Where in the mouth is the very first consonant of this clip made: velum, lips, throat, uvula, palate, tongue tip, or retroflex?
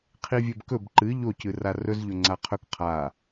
uvula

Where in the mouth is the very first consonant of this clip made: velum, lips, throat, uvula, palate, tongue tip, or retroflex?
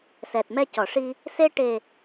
tongue tip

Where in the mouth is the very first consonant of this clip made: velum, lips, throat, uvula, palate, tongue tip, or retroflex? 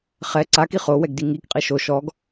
uvula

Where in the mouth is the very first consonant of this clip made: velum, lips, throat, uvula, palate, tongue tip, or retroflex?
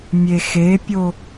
lips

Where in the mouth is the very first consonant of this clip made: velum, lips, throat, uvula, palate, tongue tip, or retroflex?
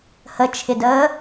throat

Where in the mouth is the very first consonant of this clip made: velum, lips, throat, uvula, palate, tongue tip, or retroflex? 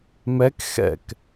lips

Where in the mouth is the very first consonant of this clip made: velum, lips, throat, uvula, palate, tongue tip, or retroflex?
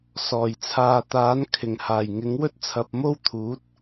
tongue tip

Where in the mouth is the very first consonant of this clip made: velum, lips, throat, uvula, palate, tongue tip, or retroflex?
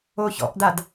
palate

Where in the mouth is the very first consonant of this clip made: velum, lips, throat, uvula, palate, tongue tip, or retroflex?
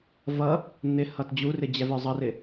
lips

